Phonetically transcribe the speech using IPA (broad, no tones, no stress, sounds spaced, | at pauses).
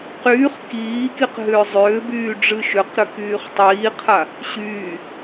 q yː χ k iː k i q ɦ ʏː zˤ ʏː b yː ɖ͡ʐ ɨ ʃ ʏ q ɾ ʏ k yː χ tˤ iː qʰ a | ɕ yː